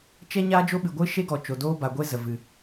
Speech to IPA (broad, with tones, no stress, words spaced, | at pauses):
t͡ʃɛ˦ ɲaː˦ d͡ʒo˦ɓɨ˨ɡʷɨ˦ ʃe˦ɡɔ˨ t͡ʃo˨doː˦ ba˨ɡʷe˦ zə˨vɨ˨